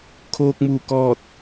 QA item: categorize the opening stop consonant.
aspirated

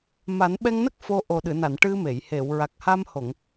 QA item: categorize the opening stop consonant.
implosive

